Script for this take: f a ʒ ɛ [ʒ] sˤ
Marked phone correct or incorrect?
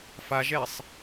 incorrect